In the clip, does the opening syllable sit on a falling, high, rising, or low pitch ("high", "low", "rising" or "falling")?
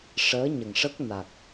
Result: rising